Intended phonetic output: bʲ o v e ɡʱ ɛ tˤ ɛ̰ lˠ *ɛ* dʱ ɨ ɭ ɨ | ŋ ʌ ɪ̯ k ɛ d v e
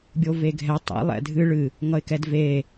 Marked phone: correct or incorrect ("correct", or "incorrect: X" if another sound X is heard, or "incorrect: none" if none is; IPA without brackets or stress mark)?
incorrect: ɛ̰